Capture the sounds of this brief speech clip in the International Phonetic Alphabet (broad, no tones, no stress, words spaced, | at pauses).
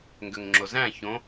ŋɡøŋŋ͡ǁozæ̃ çõ